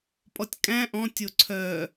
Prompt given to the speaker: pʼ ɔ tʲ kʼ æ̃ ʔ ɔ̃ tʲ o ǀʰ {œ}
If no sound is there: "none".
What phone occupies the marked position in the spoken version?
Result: œ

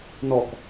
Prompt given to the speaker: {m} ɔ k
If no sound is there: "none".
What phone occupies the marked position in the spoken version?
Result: n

